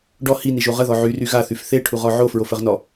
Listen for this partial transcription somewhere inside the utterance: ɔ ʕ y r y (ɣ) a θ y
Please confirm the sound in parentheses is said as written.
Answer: yes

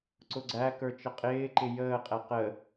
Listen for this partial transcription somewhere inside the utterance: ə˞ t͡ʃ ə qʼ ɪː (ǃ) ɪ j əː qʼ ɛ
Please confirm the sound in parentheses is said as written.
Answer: yes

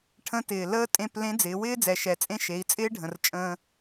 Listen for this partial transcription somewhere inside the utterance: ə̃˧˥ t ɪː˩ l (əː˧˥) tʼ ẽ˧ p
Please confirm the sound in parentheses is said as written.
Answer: no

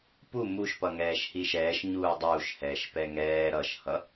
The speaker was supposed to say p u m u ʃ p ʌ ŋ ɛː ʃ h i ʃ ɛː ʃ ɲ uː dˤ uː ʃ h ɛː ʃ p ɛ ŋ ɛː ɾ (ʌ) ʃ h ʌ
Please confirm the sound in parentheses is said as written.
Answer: yes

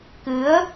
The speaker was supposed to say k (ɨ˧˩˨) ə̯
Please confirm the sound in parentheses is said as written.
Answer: no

